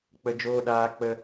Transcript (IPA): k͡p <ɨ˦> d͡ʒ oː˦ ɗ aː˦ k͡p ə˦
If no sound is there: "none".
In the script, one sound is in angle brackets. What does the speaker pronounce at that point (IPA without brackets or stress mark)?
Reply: ə˦